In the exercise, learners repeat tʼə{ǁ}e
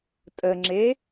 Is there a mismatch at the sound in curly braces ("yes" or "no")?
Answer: yes